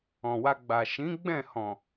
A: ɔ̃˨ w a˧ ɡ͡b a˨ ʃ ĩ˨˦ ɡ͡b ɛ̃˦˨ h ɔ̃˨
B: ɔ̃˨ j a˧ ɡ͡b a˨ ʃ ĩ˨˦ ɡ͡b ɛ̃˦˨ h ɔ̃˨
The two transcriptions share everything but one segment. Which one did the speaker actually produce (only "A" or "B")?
A